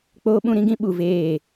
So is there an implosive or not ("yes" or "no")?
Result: yes